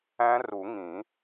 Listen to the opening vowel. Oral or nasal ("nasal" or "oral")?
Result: nasal